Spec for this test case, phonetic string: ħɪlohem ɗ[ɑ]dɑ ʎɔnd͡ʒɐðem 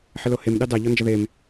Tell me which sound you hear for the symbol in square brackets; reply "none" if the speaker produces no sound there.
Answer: ɑ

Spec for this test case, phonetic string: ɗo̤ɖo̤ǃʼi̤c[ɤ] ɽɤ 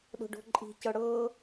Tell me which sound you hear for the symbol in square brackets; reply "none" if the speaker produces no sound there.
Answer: ɤ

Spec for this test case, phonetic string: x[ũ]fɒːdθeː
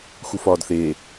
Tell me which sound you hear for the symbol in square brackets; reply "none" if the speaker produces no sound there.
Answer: u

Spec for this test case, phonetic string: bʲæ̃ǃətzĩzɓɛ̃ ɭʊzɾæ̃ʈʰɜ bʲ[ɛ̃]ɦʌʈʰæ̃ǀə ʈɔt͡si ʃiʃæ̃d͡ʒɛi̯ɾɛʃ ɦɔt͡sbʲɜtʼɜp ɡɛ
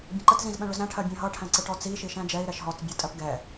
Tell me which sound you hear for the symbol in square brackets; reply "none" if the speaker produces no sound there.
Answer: ɛ̃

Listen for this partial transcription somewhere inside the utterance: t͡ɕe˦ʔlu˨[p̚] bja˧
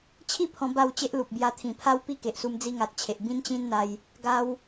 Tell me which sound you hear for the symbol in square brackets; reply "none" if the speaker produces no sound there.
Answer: p̚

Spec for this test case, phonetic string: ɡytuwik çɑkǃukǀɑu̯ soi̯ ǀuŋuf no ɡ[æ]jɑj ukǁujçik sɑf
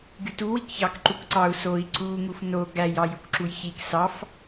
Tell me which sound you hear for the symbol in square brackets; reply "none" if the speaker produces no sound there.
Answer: æ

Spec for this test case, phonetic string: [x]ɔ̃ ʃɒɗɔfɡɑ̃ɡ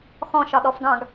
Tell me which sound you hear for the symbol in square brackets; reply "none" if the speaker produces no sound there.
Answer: x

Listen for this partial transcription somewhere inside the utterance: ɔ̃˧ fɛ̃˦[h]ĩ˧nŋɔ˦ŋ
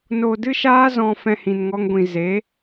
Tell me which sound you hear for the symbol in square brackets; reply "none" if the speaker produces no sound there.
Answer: h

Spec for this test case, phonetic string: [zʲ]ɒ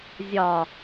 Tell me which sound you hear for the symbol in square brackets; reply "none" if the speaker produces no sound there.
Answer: zʲ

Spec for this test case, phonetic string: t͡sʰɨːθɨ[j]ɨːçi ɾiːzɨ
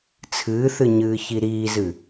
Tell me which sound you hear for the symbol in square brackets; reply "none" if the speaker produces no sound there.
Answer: ɲ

